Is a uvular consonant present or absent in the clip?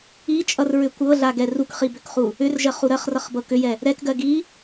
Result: present